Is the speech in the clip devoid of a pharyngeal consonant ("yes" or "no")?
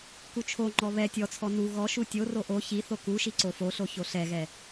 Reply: yes